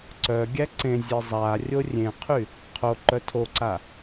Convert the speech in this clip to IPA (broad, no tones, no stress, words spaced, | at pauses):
ǀœɡʲæ ǀẽzʲe zˤa rʲorʲẽqʰy | qʰo ǃœtʰoǀa